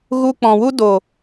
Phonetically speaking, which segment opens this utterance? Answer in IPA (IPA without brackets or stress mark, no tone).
ɣ